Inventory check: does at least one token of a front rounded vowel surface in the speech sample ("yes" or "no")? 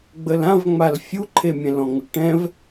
no